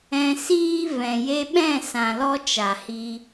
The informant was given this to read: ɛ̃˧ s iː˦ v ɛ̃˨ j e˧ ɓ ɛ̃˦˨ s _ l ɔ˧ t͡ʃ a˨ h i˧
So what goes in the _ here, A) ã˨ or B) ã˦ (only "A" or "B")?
A